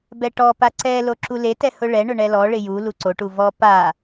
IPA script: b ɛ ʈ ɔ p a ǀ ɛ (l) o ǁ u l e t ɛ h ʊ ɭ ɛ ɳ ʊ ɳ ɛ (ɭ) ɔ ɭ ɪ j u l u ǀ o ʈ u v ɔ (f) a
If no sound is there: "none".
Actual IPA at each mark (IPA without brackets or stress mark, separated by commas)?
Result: l, l, p